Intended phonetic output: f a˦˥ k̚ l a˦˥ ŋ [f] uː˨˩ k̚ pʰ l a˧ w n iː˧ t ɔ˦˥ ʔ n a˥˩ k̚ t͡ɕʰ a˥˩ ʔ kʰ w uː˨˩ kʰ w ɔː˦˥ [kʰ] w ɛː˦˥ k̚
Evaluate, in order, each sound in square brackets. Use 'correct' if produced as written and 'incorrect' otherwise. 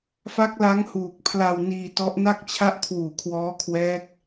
incorrect: h, correct

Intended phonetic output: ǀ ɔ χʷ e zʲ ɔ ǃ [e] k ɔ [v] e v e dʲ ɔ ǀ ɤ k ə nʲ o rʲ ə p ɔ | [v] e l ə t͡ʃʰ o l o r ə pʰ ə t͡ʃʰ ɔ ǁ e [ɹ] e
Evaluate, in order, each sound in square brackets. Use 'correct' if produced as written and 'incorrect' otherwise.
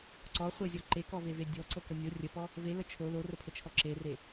correct, correct, correct, incorrect: r

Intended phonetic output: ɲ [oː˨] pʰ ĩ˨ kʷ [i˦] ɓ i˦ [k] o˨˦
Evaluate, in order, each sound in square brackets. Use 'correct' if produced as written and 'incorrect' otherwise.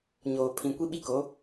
correct, correct, correct

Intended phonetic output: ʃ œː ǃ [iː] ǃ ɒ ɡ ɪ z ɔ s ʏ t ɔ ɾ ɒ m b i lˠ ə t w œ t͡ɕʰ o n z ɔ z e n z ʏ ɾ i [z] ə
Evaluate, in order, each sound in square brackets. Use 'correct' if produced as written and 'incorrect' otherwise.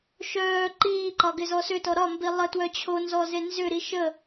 correct, incorrect: ʃ

